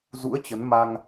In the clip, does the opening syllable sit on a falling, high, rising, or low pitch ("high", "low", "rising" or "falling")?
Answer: rising